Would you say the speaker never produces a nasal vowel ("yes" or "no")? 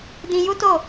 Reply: no